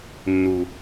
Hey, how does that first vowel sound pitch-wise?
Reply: low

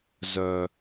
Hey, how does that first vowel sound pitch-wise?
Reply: low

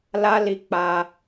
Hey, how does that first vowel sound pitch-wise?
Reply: high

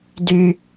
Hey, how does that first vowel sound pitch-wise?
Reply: high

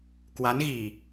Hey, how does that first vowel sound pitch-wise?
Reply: rising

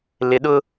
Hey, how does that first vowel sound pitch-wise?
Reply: low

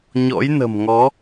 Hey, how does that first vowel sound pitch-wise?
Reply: rising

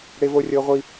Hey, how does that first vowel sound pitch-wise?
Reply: high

